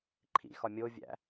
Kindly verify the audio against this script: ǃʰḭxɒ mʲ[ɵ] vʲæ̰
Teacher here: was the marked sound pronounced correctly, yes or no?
no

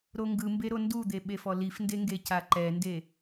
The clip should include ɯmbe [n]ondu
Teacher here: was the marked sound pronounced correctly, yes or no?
no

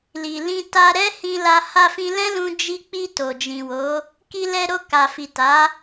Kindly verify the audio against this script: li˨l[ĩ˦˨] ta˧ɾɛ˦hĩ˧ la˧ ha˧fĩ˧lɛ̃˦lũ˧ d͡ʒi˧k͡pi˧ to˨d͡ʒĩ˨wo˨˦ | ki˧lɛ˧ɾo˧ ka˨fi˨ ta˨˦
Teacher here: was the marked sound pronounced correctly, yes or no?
no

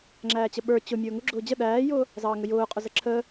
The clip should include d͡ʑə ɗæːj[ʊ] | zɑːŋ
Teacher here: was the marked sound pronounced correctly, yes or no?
no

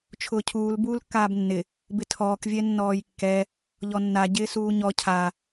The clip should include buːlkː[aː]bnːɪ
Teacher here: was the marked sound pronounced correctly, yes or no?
yes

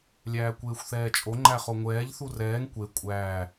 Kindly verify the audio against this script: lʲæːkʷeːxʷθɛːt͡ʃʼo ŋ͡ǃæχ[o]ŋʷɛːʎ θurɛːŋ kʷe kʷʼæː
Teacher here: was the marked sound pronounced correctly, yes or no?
yes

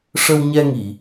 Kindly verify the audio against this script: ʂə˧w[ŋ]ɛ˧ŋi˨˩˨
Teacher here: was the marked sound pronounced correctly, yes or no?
no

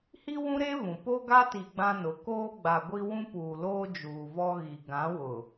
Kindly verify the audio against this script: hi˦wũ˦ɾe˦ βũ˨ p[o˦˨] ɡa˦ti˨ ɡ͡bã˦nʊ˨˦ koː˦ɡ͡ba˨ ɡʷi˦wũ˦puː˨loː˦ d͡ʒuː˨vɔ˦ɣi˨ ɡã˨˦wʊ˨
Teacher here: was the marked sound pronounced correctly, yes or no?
no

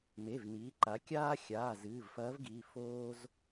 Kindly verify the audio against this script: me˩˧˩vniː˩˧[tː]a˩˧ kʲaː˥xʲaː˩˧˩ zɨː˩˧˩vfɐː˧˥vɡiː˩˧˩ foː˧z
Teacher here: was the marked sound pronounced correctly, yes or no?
no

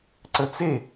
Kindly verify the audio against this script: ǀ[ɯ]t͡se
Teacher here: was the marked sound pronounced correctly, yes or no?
no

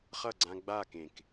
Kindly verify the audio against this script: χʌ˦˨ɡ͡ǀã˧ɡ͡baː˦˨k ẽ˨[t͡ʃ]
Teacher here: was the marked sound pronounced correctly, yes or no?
no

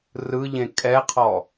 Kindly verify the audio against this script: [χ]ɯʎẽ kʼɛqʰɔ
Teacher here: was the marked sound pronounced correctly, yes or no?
no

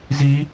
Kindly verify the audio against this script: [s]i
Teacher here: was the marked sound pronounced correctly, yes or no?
no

